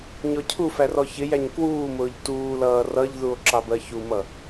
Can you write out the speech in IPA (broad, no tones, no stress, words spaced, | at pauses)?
ɲɔcʰufær ɔçɪjæɲ kwuːmʊːʎ tuːlʌː rʌʎðuo̯ ǁɑbɜçumʌ